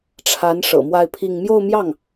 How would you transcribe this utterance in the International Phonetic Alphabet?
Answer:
ʈ͡ʂʰ a˧˥ n ʂ ɤ̰˨˩ m w a˥˧ ɪ̯ pʰ i˥˧ ŋ m j o˥˧ ʊ̯ m j ɑ˥˩ ŋ

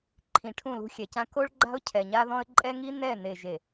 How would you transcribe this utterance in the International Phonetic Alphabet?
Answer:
ǃʰ ĩ˨ ʈʰ ũ˦˨ l ṳ˦ xʲ ɛ˨ c ã˦ k o˦ ɭ ɡ͡ǃ a̤˦ ʊ̯ cʰ ɛ˨ ɲ a˦ ð ɔ̃˦ ə̯ ǃʼ ɛ˦ ŋ i˦ n ɛ˦˨ n e˨ ʒ e˨

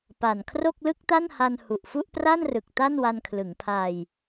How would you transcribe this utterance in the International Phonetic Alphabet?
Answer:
p a˨˩ n kʰ r o˥˩ k̚ l ɯ˥˩ k̚ t a˥˩ n h a˧ n h u˨˩ ʔ f u˥˩ ʔ p r a˥˩ n r ɯ˨˩ k̚ t a˥˩ n w a˧ n kʰ l ɯ˩˦ ŋ pʰ a˧ j

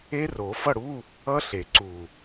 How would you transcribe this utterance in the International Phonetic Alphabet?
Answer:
e˦˥ r o˨˩˦ f ʌ˥˨ ɽ u˧˥˧ | ʌ˦˥ ɬ e˨˩˦ ǀ u˨˩

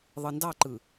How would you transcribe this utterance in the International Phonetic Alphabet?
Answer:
ðˤ ɯ n d ɑ ǃ ɯ

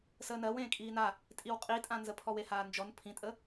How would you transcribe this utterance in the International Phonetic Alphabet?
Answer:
s əː n ɜ w ẽː kʼ iː n a | tʼ i w qʼ i tʼ ã n z ə pʰ ɔ w e h aː n d͡ʒ ɔ n pʰ ĩ tʼ ə

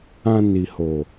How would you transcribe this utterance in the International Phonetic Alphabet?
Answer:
ã˧ n i˨ h o˨

